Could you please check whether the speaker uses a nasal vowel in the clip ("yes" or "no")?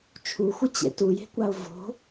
no